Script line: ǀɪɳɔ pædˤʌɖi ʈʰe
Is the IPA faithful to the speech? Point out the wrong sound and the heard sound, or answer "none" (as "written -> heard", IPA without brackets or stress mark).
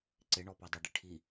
e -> i